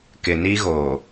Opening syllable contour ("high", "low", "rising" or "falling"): low